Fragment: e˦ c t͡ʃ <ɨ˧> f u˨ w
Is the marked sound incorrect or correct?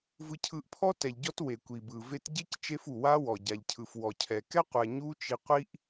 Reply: incorrect